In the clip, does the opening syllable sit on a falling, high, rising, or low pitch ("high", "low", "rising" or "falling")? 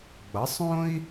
rising